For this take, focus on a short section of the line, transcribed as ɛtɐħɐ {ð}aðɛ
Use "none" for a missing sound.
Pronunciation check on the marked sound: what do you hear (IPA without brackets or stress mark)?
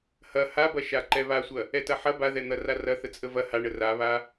b